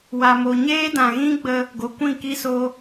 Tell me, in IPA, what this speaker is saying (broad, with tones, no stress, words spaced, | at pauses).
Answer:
wa˨mo˨ɲeː˦ dã˨ɣĩ˦ɡ͡bə˧ | ɡo˨kʷĩ˦˨ki˦ so˧